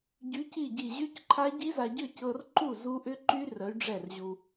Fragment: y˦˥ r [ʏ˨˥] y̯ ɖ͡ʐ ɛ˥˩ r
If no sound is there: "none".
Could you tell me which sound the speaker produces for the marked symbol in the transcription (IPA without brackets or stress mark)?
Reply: ə˨˥